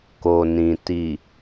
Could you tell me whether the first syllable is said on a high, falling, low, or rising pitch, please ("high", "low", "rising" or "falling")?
low